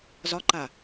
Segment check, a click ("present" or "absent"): present